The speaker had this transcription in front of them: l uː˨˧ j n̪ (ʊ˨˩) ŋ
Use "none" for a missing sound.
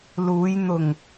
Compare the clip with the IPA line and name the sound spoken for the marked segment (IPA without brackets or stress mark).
ʊ˨˩